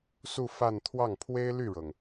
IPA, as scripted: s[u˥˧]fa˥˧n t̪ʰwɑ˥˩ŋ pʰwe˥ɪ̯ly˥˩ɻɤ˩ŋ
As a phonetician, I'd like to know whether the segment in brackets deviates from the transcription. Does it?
no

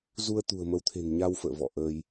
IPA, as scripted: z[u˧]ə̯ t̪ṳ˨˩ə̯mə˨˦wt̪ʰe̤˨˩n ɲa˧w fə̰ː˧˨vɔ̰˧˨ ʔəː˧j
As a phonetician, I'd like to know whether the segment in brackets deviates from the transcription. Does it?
no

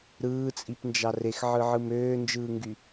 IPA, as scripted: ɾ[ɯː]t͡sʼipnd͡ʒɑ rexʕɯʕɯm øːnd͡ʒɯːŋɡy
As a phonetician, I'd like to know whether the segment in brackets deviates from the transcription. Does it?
no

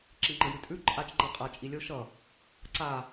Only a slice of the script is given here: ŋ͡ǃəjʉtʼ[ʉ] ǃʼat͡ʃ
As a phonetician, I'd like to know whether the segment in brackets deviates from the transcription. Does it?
no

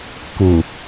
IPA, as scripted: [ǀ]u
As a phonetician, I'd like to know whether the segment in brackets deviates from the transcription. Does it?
yes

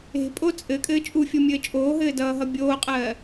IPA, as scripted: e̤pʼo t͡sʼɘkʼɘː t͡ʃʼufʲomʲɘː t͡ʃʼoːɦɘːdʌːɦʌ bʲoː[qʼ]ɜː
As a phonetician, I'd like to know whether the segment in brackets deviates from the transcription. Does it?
no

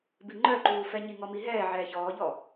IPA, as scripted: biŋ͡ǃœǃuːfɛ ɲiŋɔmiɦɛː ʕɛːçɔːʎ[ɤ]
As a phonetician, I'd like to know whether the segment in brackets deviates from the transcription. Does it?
yes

